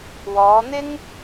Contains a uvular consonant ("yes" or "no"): no